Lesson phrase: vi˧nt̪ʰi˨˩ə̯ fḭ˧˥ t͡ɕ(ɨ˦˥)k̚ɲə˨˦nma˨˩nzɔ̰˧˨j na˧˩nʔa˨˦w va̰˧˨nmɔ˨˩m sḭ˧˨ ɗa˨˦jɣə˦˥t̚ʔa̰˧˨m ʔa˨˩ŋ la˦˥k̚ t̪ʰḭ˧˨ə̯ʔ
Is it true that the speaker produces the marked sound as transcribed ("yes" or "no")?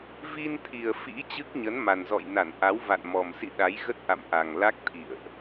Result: yes